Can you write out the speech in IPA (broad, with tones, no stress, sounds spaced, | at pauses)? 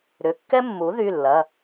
ɾ ʏ˩˧˩ kː ɛ˥ mː u˩˥ ð y˩˧˩ lː ɐ˩˧˩